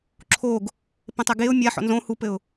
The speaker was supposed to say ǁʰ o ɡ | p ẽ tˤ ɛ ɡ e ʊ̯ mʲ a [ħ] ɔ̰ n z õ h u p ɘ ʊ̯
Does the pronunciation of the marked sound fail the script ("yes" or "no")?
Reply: no